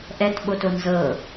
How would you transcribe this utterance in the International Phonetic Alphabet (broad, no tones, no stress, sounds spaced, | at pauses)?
ʔ ɛ t ɓ o t o n z ɤ